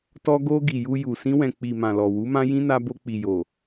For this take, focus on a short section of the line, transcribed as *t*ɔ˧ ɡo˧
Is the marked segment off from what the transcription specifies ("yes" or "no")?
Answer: no